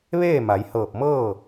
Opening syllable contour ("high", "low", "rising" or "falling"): falling